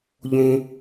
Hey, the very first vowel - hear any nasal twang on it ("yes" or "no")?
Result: yes